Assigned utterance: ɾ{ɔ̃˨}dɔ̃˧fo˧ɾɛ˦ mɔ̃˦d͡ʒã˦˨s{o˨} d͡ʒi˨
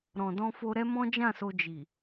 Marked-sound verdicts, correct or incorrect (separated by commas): correct, incorrect